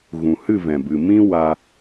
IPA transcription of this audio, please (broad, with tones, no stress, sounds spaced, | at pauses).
ɣ ũ˨ h ɨ˦˨ v ɛ̃˨ b ɨ˨ m ĩ˦ w a˧